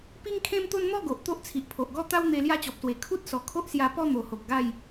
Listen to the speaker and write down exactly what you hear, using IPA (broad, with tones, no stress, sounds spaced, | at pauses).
p i˦ ŋ kʰ ẽ˦ m t̪ o˦ n n̪ ɔ˥˧ ɡ o˨ ʔ t̪ o˦ ʔ t͡sʰ i˨ ʔ pʰ o˨ ʔ ɡ ɔ˥˧ t̪ a˦ w n̪ e˧ l j a˦ t͡ɕ ɔ˨ p̚ s w e˨˩ kʰ u˦ t̚ s ɔ˨˩ kʰ o˦ ʔ s j a˧ p ɔ˥˧ n̪ o˨˩ h o˨ k̚ ɡ a˥˧ j